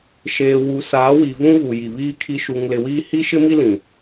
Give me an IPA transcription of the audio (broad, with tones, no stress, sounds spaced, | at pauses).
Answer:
ʃ eː˨ w u˨ s aː˨˦ w i˨ v ũ˦ ɣ u˨ j i˨ β iː˦ kʰ i˦ ʃ u˨ ŋ l ɪ˨ w iː˦ h i˦ ʃ ɪ˦ m i˦ l ĩ˨